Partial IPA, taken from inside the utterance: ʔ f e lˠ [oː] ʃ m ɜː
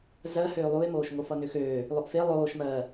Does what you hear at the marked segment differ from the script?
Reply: no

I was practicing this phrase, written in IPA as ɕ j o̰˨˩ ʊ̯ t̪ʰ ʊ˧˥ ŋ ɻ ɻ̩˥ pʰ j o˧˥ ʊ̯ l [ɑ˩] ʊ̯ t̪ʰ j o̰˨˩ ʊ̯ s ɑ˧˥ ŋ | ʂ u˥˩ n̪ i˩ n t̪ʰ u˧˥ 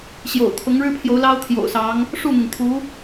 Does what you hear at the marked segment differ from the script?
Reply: yes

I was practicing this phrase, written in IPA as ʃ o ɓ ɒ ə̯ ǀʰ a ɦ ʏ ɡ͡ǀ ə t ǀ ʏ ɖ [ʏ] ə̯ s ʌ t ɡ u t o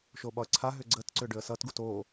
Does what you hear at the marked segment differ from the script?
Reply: no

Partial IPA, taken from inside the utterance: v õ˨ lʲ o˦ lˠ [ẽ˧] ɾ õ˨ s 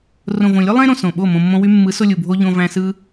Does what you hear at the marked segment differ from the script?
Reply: no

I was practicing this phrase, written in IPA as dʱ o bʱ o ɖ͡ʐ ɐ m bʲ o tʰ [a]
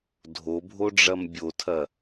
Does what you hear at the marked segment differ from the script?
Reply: yes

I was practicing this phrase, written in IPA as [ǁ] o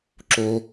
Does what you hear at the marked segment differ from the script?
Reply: no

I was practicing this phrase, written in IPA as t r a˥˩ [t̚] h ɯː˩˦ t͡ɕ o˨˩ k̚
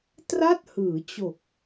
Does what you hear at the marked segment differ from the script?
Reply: no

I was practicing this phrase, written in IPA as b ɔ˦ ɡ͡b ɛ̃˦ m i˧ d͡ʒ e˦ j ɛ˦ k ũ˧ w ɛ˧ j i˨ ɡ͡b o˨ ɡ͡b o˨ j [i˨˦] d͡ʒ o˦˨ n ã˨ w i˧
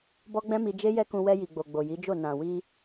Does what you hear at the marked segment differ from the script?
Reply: no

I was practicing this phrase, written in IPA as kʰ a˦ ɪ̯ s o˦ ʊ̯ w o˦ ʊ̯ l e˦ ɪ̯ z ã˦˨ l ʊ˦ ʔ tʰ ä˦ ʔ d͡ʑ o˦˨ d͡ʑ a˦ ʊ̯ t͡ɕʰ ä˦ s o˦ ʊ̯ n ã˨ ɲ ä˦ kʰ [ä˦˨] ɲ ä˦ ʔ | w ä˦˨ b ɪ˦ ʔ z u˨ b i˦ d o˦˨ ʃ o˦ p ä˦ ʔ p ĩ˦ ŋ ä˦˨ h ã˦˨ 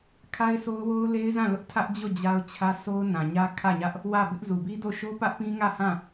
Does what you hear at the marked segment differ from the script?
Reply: no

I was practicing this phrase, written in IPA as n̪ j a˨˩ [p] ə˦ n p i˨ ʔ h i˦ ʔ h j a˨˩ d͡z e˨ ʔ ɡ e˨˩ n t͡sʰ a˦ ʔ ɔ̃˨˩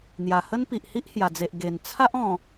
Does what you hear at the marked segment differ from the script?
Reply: yes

